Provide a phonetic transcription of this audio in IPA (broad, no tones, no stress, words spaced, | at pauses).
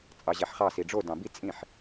t͡sʼɑʑæħχɑ siɖ͡ʐo dɑ̃bi t͡sʼĩħ